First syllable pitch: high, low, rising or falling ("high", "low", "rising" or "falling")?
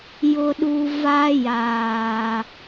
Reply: low